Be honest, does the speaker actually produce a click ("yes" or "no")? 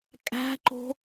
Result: yes